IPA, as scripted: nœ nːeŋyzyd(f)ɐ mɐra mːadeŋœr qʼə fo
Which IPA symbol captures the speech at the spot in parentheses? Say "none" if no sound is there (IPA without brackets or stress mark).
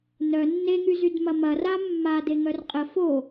m